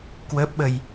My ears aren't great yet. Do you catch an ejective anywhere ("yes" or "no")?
no